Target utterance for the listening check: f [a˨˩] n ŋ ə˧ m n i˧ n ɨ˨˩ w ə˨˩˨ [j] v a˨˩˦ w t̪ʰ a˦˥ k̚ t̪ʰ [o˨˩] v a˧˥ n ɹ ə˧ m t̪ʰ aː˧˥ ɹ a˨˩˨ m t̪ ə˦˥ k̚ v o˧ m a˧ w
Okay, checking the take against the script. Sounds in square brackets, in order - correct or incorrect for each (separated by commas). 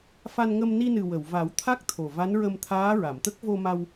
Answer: incorrect, incorrect, correct